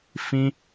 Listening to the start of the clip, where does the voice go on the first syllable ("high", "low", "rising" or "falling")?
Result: high